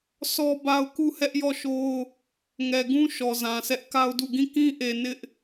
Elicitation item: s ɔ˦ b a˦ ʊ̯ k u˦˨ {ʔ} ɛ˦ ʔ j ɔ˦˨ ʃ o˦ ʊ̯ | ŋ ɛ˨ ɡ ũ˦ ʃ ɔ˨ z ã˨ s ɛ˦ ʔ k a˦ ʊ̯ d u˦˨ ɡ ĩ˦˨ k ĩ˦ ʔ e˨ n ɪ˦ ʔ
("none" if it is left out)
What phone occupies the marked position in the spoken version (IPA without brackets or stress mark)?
h